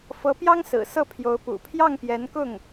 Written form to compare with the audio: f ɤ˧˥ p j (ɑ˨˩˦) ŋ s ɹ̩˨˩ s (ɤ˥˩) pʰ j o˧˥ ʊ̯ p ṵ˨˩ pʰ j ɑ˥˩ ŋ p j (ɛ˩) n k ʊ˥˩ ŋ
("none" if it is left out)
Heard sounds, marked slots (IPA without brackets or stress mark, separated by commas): ɑ˥, ɤ˥˩, ɛ˧˥